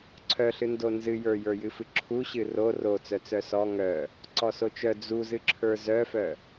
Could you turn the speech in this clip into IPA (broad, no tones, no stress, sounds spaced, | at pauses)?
ǀʰ œ ɬ ɨ n d o n z ɨ j ə˞ j ə˞ j ɨ f ɨ ǁʰ u ɕ ɨ r o r o t͡s œ t͡s œ s ɔ ŋ œ | ǀ ɔ s o t͡ʃ œ d͡z u z ɨ ǁʰ ə˞ z œ f œ